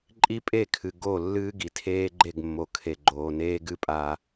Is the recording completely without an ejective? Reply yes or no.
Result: no